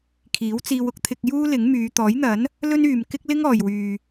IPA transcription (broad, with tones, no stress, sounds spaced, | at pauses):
kʰ iː˨˥ w t͡s iː˧ w ʊ˥ k̚ t̪ʰ ɪ˧ k̚ j uː˥ l ɪ˨˥ ŋ m yː˨˧ t̪ ɔː˨˥ j n̪ ɐ˨˥ n | l ɵ˥ n yː˨ m k ɪ˥ k̚ l ɪ˥ ŋ ɔː˨ j w yː˨